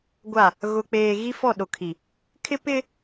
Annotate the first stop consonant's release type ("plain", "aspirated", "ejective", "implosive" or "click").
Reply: plain